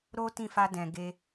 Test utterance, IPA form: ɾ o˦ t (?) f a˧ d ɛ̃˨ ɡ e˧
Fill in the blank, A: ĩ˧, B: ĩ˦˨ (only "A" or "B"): B